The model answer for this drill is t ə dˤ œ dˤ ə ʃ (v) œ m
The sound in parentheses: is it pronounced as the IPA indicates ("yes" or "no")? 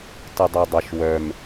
no